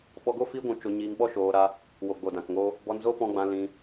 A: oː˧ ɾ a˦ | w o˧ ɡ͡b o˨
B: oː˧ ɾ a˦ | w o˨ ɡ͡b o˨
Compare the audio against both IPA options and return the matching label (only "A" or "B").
B